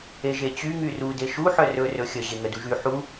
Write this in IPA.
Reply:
e ʒ e t͡ɕ y ŋ y r u d e ʃ u ħ œ r ɵ r ɵ xʲ ə ʑ e ŋ ə d u ʒ y ħ u

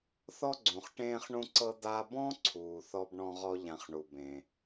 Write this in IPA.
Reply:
θ ɔ˥ ɡ͡ǀ ũ˩ χ ʈ ẽː˧ χ ɳ ũ˧ ǀ ɤ˧ d̪ a˧ b ɔ̃˥ ǀʰ uː˩ θ ɔ˧ b ɳ ɔ̃˧ ʁ ɔ˧ ʎ ã˧ χ ɳ u˩ b ẽ˩

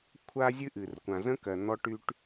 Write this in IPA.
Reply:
kʷʰ a˦ zʲ ɨ˦ ʔ ɨ˨ r kʷ ã˨ z ə̃˦ k ɜ˨ n̪ ɔ˦ ʈ y˦ ʈ

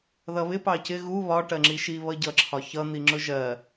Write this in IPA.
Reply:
ð ʌ β ɪ p ɑ c ɪ ɣ u β ɒ ʈ ɜ ŋ͡ǁ i ʃ i β ʌ ɟ ʌ ǁʰ ɒ ç ʌ n̪ i ŋ͡ǁ ʊ ʒ ɜ

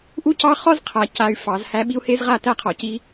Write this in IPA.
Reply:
ʔ u˦ c ɑ˦ χ ɔ˦ z qʰ a˨ c a˨ y̯ f ɑ˨˦ z h æ˦ ɓ i˦ u̯ h e˦ z ʁ a˦˨ t æ˦ qʰ ɔ˨ c i˦

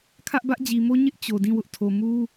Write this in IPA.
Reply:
kʰ ä˦ ʔ b ä˦ ʔ d͡ʑ i˨ m o˦ ɲ ɪ˦ ʔ t͡ɕ o˨ d ĩ˦˨ w ʊ˦ ʔ tʰ o˨ m u˦

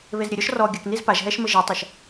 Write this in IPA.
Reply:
β e z ɾʲ ɘ ɾʲ ɔ ʃ r ɔ ɡʲ ɐ k n i z p a ʒ ɦ ɛ ʃ m ɘ ʒ i tˤ a ʃ

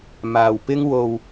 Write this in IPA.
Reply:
m aː˨ w p ɪ˥ ŋ w o˧ w

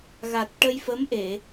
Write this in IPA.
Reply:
ɣ a˨˩ t̚ ʈ ə˧ j f ə˧˥ m ʔ e˨˩˨

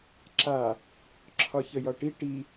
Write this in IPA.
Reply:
ǁ a | ǁʰ ɒ ç ə j ɒ ʈ i ʈ i

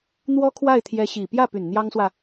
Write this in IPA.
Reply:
n̪ w ɔ˥ kʰ w a˥˩ ɪ̯ t̪ʰ j ɛ˧˥ ɕ i˨˩ p j ä˥˩ p y˨˩ n n̪ j ɑ˥ ŋ s w ä˨

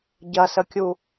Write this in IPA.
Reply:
ɟ ɐ s ə kʲ u

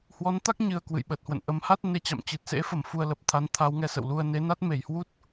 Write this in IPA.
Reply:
h w ɔ˨˦ n t̪ a˦˥ k̚ ɲ ɨ˨˩ ə̯ k w ɨ̰˧˨ j ɓ ə˨˩ t̚ h w ə̰˧˨ n ʔ ə˨˦ m h a˦˥ t̚ n e˧ t͡ɕ a̰˧˨ m t͡ɕ ɨ˨˩ t̚ s ḛ˧˥ f ə˨˩ m f u˧ ə̯ l ə˨˩ p̚ t̪ʰ a˨˦ n t̪ʰ a˨˦ w ŋ ɛ˧ s ə̰˧˨ w l u˧ ə̯ n e˨˦ n a˦˥ t̚ m e˧˩ j h w u˦˥ t̚

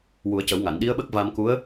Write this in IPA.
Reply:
w u˨˩˦ ə̯ c ə˨˩˦ w ŋ a˨˩˨ n ɗ i˧˥ ə̯ ɓ ə˦˥ k̚ v a˧ m k u˧˥ ə̯

